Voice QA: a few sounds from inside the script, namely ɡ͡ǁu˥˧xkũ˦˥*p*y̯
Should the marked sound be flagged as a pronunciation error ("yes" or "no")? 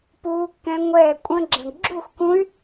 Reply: yes